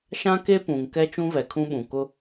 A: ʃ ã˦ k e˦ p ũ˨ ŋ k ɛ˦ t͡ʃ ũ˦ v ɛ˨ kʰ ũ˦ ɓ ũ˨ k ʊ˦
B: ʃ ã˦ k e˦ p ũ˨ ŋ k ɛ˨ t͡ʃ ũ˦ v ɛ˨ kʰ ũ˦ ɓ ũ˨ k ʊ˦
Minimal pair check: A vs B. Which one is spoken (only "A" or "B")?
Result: A